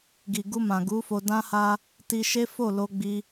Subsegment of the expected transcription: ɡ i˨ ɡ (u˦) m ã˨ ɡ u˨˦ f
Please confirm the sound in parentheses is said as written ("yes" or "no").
no